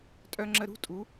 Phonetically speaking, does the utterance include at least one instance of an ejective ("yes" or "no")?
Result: yes